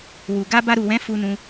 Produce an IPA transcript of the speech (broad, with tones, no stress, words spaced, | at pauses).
wu˨ɡa˧ ba˧ɾu˨wɛ̃˨˦ fu˧nũ˧